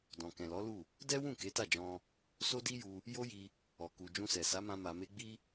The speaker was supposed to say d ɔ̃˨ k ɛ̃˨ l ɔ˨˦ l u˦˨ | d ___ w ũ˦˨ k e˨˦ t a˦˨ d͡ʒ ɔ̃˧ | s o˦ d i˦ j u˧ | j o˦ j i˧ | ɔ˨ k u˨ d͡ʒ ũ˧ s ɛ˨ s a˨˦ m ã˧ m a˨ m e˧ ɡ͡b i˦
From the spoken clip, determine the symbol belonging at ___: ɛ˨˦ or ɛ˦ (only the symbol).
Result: ɛ˦